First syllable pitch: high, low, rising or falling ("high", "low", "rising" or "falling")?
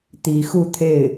rising